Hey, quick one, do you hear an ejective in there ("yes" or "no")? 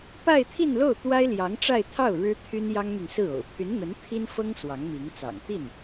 no